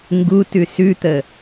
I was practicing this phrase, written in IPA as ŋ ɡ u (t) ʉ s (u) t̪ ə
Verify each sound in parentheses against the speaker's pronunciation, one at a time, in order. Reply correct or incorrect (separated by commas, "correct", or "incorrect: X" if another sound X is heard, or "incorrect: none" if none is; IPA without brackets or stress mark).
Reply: correct, incorrect: ʉ